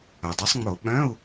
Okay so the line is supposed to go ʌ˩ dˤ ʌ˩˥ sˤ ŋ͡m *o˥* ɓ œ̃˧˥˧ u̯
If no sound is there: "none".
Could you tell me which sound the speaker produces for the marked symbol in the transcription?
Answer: o˧˩˧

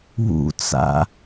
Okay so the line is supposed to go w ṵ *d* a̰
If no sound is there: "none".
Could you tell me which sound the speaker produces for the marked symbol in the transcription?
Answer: t͡s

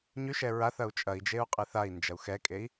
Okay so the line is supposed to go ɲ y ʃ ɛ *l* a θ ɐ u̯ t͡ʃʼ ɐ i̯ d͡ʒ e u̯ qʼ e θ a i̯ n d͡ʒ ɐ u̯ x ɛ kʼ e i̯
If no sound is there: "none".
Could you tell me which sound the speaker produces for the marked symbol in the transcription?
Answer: ɹ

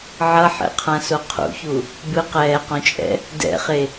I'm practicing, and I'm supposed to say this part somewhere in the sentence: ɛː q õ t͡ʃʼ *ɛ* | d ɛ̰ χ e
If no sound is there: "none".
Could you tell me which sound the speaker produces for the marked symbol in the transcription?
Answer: ɛ̰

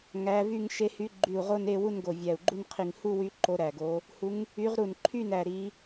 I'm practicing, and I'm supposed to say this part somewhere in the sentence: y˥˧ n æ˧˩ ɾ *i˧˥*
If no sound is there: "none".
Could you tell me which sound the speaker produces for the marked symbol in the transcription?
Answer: i˧˥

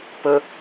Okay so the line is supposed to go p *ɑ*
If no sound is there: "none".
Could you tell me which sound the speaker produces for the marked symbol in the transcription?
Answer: ə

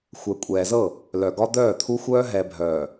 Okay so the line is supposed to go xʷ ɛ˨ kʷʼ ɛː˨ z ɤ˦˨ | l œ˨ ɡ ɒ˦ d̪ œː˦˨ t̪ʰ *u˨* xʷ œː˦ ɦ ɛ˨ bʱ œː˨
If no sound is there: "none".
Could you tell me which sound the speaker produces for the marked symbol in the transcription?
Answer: u˦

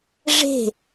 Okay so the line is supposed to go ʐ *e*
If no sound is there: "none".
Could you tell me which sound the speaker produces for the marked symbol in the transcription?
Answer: e̤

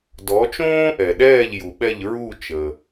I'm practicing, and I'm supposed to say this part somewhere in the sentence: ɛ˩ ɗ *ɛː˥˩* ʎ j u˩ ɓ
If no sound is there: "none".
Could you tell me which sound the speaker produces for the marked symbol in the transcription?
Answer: ɛː˥˩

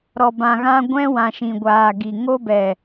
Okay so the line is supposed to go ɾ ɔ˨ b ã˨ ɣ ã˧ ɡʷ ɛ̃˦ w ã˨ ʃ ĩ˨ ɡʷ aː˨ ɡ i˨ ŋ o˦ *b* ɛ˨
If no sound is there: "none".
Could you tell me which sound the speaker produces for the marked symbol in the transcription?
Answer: b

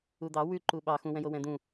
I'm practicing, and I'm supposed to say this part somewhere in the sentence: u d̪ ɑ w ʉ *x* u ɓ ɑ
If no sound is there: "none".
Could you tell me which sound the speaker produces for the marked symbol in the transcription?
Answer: ǃ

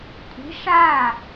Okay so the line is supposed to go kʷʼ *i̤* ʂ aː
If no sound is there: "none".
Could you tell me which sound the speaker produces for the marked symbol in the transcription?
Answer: i̤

